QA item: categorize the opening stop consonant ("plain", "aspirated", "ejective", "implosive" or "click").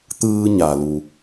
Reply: plain